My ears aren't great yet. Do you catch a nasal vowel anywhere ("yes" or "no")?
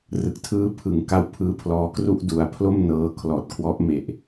no